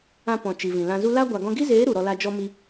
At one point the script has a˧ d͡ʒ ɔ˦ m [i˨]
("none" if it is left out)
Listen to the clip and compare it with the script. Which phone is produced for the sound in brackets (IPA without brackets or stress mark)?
i˧